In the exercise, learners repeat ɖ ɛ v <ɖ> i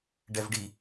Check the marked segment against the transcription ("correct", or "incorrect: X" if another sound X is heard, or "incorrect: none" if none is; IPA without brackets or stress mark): correct